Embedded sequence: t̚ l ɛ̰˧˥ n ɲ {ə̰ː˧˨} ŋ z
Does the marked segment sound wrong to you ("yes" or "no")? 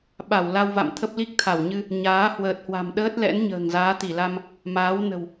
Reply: yes